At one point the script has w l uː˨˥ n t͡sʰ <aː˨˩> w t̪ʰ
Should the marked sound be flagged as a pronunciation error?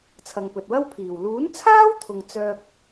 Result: yes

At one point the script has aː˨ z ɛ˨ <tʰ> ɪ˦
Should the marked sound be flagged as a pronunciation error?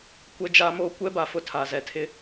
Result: no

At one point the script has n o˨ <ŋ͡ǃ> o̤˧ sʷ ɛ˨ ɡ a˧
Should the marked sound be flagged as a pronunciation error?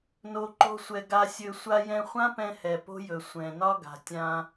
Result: yes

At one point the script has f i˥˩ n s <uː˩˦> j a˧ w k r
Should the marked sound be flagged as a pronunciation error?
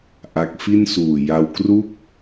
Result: yes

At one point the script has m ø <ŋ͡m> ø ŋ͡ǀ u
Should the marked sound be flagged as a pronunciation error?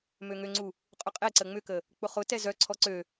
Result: yes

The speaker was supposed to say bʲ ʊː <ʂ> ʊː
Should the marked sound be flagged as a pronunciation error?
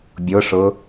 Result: no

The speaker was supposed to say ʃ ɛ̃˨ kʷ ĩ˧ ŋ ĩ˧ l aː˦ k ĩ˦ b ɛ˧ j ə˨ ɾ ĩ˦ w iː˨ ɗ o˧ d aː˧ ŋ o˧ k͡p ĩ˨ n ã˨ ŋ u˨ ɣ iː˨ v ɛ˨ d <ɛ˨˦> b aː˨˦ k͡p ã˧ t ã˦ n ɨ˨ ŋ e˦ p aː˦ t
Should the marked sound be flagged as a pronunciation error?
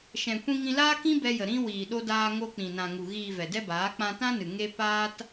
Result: yes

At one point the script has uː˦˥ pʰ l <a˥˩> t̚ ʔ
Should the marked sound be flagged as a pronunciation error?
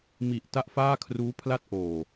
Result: no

